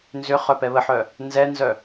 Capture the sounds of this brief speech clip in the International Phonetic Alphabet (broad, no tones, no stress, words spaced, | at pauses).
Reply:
nzʏ χœpɛβəħœ | nzɛnzœ